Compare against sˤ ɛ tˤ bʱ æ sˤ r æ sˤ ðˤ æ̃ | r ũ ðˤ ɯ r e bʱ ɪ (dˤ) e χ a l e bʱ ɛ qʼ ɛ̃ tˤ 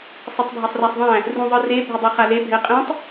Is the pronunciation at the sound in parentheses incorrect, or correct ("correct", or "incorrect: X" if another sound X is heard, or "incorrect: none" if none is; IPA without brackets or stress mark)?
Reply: correct